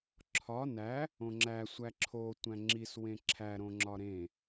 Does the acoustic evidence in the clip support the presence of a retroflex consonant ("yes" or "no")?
no